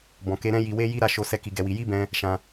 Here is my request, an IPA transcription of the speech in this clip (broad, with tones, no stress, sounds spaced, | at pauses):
b ɔ̃˨ k e˧ ɾ ɛ̃˦ j i˧ w e˦ j i˦ ɾ a˦˨ ʃ o˧ s ɛ˦ k i˧ ɡ ɛ˧ w i˧ j i˦ b ɛ̃˧ | ʃ ã˧